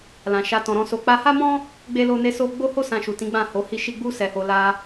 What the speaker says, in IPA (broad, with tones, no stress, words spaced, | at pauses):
lã˨ ʃa˧tɔ̃˨ɾɔ̃˧ so˨k͡pa˧ha˦mɔ̃˦ | ɡ͡be˦lo˦ne˦ so˦ ɡ͡bo˦ho˦ sã˧ʃu˨tĩ˨˦ ɡ͡bã˦˨ho˨˦hi˦ʃi˦ ɡ͡bu˦ sɛ˧ho˧ la˧